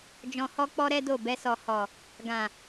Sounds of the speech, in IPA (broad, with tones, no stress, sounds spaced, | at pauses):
d͡ʒ ɔ̃˨ h ɔ˧ k͡p ɔ˧ ɾ ɛ˦ d o˦˨ b ɛ˧ s ɔ˨ h ɔ˨ | ɡ ã˨